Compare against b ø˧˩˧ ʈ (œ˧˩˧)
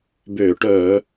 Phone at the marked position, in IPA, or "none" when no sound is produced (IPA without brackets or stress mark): œ˧˩˧